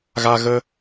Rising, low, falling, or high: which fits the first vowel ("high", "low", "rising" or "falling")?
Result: high